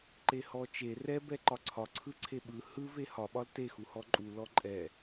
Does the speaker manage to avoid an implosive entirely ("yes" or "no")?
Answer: no